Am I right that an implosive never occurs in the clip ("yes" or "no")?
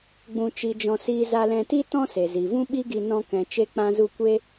no